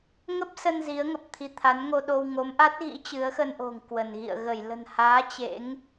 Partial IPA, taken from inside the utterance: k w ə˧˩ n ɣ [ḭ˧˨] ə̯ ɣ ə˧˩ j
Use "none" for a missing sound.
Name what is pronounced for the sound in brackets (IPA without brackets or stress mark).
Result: ḭ˧˨